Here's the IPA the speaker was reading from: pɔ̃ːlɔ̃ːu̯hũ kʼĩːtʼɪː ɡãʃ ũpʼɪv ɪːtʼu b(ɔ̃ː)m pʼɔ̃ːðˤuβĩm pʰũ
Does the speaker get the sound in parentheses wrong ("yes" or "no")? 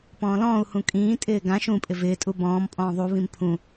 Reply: no